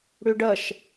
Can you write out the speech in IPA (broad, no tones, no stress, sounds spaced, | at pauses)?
ɽ ʏ ɖ ʌ ʃ